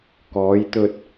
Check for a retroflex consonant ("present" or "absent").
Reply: absent